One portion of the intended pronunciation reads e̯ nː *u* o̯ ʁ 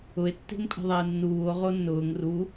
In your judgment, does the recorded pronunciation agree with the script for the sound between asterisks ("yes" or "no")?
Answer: no